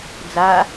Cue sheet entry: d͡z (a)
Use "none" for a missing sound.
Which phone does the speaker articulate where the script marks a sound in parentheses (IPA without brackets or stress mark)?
a